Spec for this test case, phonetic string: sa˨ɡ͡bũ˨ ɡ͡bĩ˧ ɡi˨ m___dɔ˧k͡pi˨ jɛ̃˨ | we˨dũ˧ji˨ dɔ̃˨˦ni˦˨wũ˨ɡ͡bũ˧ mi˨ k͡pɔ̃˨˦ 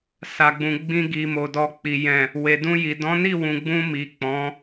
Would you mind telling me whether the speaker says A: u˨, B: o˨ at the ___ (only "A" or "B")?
B